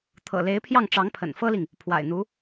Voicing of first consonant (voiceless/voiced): voiceless